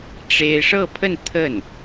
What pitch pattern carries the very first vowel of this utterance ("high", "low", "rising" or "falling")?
high